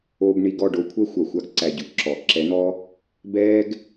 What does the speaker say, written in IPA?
oː˧ b ɳ i˨ ɡ ɔ˦˨ ɖ o˧ kʷʰ ɛ˦ xʷ a˨ xʷ a˧ ɡ ǀ æ˨ ɟ ʊ˨ ɡ ǁ ɔ˨ ǁ ɛ˨˦ n̪ ɔ˦ | b ɛː˦ ɡ

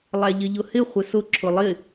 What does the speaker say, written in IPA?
lˠ æ ʎ ɪ ʎ ʊ h ɪ χʷ ɪ s ʊ ǁʰ ʊ lˠ ɪ

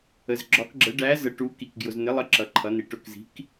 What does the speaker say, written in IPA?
ə˧ z ɡ͡ǁ ɒ˧˥ k ɡ͡ǁ ə˧˥ ɖ æ˧˥ z ə˧˥ ʈ u˧˥ k i˧ k ɡ j ʊ˧ z n ɪ˧˥ lˠ ə˧˥ ǁ ʌ˧˥ ǃʰ ʌ˧˥ n i˧˥ ʈ ʊ˧ k z i̤˧˥ k

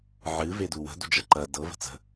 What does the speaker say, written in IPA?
ʕ ɨ v e d u w ə̤ d u d͡ʒ ɐ ǃ ɐ d ɤ v ə̤ t͡s ə̤

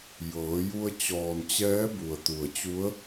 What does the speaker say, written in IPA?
j ɤː˩˧ j u˧ ə̯ t͡ɕ ɔː˩ n t͡ɕ ɛː˧˥ b u˩ ə̯ t̪ u˩ ə̯ t͡ɕ u˧˥ ə̯

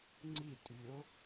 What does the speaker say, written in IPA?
ŋ͡ǀ i tʼ y ʊ̯

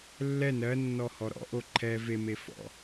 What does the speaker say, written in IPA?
lː ɛ n ɜ nː ɔ h ɔ ɾ ɔ̰ ʔ o ǃʰ ɛ v e m e f ɔ̰

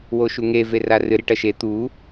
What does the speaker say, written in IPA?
w o ʃ u ŋ e v e r a r ɨ ɾ i ʈ ɐ ʃ e t̪ u

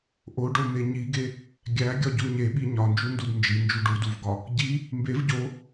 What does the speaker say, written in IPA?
ʔ o ɖ o m e ɲ i ɡ e | ɡʲ æ ɡʲ ɒ ɟ u ɲ e ɓ i ɲ ɒ n d͡ʒ u n d u d n d͡ʒ i n d͡ʒ u ɖ u d u v ɡ ɒ | ɟ i | m b e v ɟ o

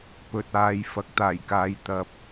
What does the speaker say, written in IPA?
p ɵ˨ t̚ aː˨ j f ɐ˨˥ k̚ t̪ aː˨˩ j k aː˨˧ j t̪ ɐ˨ p̚

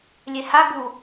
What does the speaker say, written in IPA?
lʲ e h a ɡ u

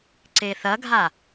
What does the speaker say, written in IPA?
ǀ e θ ɐ ɡʱ a

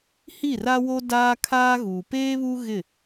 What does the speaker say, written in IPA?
h i˦˨ r a˦ w o˦ d aː˦ kʰ aː˦ ɣ uː˨ p eː˦ β u˦ ɣ ɪ˦˨

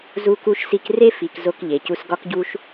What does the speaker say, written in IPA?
z u˧ k u˧ ʃ s i˧ k r e˥ f i˩ k z o˧ k ʎ e˩ c u˧ s ɡ ɒ˥ k ɟ u˥ ʃ

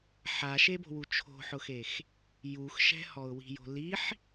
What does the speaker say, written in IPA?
ħ a ʃ e b o̤ w u t͡ʃʰ o̤ ħ ʊ x e x | j u x ʃ ɛ̤ h ɔ ʊ̯ w i̤ j o̤ l i ħ

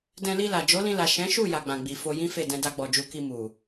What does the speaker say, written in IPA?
d ɛ̃˧ l i˧ l a˨ d͡ʒ o˨˦ l ĩ˧ l a˨ ʃ ɛ̃˨˦ ʃ u˦˨ j a˧ ɡ͡b ã˨ ɡ͡b i˨ f o˧ j ĩ˦ f e˦˨ d ɛ̃˧ d a˧ ɡ͡b ɔ˨ d͡ʒ u˨˦ k i˧ m u˨

